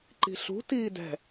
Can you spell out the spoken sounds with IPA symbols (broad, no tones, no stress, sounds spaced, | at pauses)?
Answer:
ǃ i̤ ɬ ṳ t iː d ɛ̤